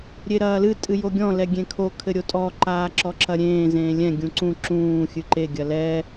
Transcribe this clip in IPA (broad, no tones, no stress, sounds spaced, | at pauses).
ɾʲ e ɾ ɐː l ɨ tʼ ɨ j o ɡʲ ɔ̃ l ɛ ɡʲ ẽ kʰ o kʰ ɘ ɾʲ o tʼ ɔ ǃ aː ǁ ɔ ǁ ɐ ɾʲ ẽː z ẽː lʲ ɛ̃ ɡʲ ũ ǀ ũ ǁ ũː xʲ ɨ ǃ e ɡʲ ɐ l ɛ